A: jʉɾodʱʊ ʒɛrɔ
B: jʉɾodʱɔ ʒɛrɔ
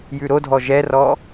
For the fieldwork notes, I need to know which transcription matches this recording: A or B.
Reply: B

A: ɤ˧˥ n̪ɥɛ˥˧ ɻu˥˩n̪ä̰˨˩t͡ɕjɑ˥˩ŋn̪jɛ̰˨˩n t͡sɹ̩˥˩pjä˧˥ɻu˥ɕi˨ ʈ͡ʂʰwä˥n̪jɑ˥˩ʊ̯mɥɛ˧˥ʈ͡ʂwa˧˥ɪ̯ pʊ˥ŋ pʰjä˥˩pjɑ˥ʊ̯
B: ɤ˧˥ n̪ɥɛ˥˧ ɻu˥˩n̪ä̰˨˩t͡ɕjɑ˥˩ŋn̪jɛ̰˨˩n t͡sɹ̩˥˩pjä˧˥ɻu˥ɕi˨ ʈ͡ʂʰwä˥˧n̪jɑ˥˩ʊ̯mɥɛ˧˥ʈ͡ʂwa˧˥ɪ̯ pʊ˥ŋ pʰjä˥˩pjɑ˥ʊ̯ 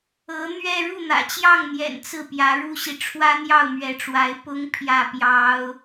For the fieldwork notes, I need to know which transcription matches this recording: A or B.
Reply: A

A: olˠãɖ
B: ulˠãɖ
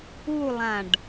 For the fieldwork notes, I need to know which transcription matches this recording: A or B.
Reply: B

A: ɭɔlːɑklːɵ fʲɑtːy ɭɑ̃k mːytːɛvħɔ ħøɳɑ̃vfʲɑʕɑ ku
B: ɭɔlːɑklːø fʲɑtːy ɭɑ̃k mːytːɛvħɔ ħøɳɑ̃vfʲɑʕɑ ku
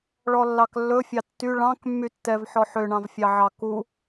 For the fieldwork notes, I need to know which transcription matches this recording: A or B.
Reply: A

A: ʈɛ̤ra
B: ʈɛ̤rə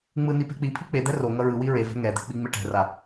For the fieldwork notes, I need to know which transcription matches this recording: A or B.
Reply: A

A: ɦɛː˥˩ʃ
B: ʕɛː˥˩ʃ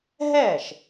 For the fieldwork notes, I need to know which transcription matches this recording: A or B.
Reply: A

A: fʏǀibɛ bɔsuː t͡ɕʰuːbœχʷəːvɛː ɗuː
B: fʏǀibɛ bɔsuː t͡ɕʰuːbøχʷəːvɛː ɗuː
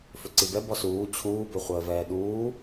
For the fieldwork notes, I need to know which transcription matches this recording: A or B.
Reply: B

